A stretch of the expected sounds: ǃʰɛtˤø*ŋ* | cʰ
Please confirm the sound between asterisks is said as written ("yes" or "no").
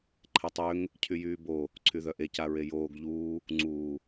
yes